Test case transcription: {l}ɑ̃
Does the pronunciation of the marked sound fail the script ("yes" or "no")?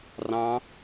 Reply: yes